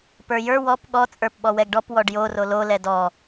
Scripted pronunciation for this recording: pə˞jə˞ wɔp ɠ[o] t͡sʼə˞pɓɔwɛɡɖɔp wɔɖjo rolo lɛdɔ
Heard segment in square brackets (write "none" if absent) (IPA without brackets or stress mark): ɔ